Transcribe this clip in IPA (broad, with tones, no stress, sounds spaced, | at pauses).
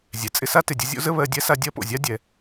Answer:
zʲ ɛ˩ t͡sʼ ɪ˦ s a˥ t ɪ˩ dʲ ə˦ zʲ o̰˥ z ə˥ β ɜ˦ dʲ ɛ˥ s a˦ dʲ ɜ˦ p o̰˩ zʲ a˥ dʲ ɛ˩